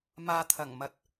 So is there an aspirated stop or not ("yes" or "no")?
yes